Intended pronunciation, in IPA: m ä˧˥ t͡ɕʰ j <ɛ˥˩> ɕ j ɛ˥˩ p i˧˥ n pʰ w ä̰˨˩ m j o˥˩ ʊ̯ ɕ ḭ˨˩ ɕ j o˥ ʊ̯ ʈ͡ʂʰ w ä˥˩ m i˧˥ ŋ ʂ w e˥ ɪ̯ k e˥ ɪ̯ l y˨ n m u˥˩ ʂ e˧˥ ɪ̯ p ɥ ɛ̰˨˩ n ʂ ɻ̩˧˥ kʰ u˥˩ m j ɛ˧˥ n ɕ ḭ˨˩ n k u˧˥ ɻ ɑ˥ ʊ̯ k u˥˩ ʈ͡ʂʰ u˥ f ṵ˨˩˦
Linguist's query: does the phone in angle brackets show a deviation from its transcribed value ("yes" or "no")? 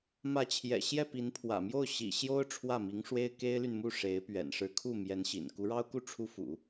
yes